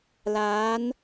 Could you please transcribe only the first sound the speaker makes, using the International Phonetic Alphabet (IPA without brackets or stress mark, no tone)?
l